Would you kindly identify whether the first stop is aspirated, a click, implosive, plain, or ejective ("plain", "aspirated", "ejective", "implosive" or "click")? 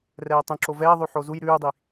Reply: plain